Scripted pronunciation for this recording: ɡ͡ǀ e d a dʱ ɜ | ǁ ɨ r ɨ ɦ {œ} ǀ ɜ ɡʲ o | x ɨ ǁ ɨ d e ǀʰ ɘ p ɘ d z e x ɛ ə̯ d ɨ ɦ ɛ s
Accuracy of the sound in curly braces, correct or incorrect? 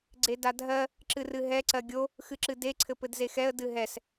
incorrect